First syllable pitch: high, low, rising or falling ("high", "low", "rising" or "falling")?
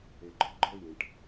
low